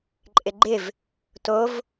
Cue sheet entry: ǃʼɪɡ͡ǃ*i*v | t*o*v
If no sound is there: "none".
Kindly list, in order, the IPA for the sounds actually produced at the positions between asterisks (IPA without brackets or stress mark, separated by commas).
ɪ, o